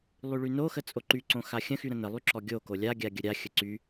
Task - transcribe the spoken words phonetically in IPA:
lˠyɭynoxə t͡sʼoǃyǀõ xaxʲə̃xy ɾə̃nəlˠy ǁɔɡʲoko lʲaɡʲa ɡʲəɾʲaxʲə ǀy

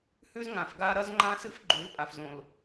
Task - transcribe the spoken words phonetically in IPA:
hʉ˦zŋã˨f ɡa˦ ɾɐ˦zŋ͡ǃã˦sɨ˦f ɡ͡ǃʉ˨˦lpʼa˨fzõ˨l

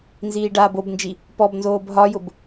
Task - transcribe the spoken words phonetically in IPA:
nziːɖaːbobnd͡ʒi | pɔbnzoːb ɦɒjʊb

